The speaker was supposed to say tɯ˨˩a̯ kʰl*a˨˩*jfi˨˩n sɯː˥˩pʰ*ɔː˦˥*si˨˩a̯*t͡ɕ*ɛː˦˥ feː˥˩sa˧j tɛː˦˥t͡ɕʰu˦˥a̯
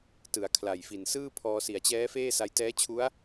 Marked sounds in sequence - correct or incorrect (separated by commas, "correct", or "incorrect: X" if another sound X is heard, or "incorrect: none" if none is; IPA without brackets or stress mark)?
correct, incorrect: ɔː˧, correct